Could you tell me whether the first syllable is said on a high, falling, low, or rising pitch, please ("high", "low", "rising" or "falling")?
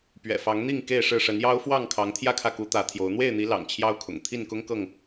low